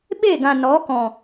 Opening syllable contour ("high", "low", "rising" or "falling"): falling